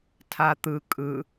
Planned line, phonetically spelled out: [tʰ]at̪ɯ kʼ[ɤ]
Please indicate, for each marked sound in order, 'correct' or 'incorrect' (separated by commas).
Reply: correct, incorrect